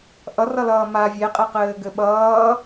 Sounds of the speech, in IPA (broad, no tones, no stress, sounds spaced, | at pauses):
ʔ ʌ r ʌ l ʌː m a vʲ e qʼ e q ɘː ɡ ɘ ɓ ʌː